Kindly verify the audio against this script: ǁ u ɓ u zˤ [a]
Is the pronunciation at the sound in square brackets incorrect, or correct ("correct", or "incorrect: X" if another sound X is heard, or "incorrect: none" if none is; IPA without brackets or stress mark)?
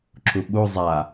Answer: correct